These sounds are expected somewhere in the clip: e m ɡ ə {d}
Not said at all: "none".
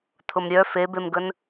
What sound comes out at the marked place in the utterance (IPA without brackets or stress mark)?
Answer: n